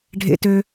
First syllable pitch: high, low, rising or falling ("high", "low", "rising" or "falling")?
high